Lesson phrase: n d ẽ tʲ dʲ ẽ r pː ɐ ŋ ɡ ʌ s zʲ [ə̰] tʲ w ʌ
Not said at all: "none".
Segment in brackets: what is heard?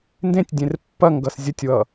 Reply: ə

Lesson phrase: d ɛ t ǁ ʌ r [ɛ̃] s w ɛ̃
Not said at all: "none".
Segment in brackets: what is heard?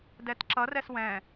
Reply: ɛ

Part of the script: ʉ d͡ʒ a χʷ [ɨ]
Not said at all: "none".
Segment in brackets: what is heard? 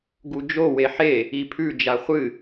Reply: ɨ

